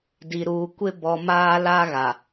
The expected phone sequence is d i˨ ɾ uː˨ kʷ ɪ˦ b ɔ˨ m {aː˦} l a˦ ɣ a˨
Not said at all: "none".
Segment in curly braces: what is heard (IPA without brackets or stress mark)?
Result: aː˦